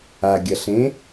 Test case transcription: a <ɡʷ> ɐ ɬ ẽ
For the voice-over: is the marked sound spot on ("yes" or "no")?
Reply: no